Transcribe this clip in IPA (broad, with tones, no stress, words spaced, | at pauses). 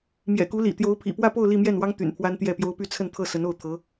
mjɛ̰˨˩ku˧˥lḭ˨˩ t̪jo˧˥ʊ̯ pʰḭ˨˩pwä˥˧po˥˧ʊ̯ li˥˧mjɛ˥˩nwɑ˥ŋ t̪y̰˨˩npʰwa˥nt̪jɛ˥˩pjo˥ʊ̯ py˥˧t͡sʰə˥˧nt̪ʰɤ˥˩ sə˧˥no˥˩ʊ̯t̪ʰɤ˧˥